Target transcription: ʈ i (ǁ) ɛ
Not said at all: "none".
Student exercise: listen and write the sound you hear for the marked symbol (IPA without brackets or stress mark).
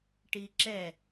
ǁ